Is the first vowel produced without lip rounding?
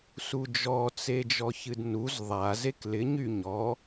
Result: no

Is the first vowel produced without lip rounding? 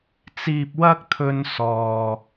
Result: yes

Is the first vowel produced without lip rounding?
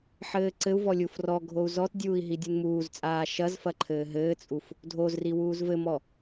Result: yes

